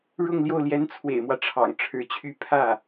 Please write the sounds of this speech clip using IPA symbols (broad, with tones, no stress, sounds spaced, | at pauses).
ɻ ʊ˥˧ ŋ l j o˥˩ ʊ̯ l j ɛ˧˥ n t͡sʰ w ḛ˨˩ ɪ̯ m w ä˦ ʈ͡ʂʰ ɑ̰˨˩ ŋ ʈ͡ʂʰ ɻ̩˧˥ t͡ɕʰ y˥˧ pʰ ä˥˩